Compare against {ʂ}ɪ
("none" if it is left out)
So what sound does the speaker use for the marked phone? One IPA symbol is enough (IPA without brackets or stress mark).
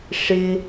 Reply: ʂ